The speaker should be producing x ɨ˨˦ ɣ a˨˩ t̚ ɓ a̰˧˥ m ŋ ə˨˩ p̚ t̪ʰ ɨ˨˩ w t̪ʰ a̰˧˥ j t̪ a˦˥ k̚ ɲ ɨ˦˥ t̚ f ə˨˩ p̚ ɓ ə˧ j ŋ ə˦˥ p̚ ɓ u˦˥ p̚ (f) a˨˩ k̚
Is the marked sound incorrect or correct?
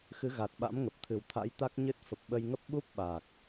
incorrect